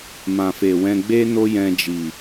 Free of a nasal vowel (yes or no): no